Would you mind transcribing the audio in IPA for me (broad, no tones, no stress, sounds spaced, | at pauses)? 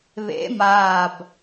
β ḛ m aː b